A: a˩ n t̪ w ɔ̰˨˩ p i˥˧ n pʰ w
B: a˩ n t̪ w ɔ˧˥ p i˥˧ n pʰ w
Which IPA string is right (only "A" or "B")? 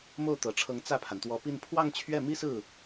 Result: B